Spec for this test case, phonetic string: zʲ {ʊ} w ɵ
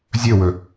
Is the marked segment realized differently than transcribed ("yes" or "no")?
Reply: yes